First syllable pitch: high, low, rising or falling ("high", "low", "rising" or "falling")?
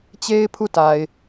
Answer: high